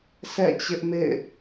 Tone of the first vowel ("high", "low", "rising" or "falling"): falling